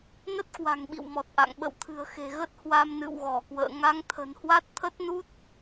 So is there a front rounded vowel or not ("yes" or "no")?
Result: no